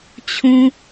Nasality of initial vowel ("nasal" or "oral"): nasal